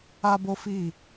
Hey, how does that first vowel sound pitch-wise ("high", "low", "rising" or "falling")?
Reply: high